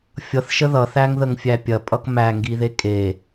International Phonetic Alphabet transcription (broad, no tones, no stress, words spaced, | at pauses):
fʲʌθʃə ðʌθæŋðəŋfʲæ pʲɐpʼʌk mæŋɡiðe kʼe